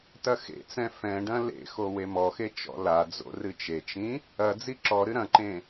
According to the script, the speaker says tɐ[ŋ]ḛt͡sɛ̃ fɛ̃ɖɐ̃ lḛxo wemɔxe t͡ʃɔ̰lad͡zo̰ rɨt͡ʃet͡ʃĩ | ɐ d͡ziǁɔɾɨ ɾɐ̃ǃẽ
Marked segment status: incorrect: x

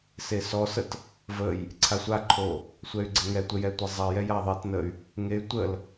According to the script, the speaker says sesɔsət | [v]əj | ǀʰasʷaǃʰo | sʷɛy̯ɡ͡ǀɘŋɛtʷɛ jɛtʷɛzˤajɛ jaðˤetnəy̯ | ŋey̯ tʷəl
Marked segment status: correct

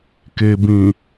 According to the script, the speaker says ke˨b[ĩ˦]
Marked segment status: incorrect: ĩ˨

